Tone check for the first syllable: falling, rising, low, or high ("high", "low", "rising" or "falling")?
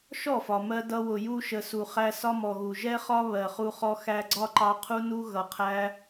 falling